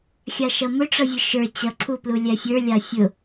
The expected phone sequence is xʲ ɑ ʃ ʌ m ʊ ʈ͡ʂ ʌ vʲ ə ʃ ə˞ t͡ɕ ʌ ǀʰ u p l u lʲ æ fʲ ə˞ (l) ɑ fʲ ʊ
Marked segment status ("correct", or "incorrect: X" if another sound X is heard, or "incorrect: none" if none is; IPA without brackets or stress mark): incorrect: lʲ